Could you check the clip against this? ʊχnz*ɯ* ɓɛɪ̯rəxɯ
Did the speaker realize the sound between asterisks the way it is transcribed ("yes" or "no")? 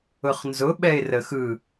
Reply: no